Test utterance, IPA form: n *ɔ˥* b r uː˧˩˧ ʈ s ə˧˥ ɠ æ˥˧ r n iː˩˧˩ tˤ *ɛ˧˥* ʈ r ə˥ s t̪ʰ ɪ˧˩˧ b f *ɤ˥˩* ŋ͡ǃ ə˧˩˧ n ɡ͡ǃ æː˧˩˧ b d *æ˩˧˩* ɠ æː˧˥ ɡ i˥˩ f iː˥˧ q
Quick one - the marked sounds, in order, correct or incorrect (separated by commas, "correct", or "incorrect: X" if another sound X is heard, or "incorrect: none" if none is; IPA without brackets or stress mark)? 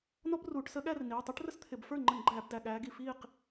correct, correct, incorrect: ə˞˥˩, correct